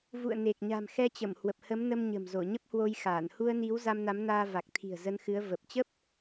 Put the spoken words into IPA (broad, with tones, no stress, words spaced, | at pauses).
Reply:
vṵ˧˨ə̯ne˨˩k̚ ɲa̤˨˩mxɛ˧t͡ɕə˧˩m hwə˨˩p̚hə˨˦mnə˧mɲə̤˨˩m zo˧˩ɲə˦˥p̚hwo˧jxaː˧˩n hu˧ə̯ni˨˦w za˧mna˨˦mnaː˧ va˨˩k̚t̪ʰi̤˨˩ə̯ zə˧nxɨ˨˦ə̯ və˨˩p̚t͡ɕə˦˥p̚